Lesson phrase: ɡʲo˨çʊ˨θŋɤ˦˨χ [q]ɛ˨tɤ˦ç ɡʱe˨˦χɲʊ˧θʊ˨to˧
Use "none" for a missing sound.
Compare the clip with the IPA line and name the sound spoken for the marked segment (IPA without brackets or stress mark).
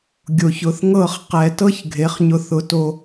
q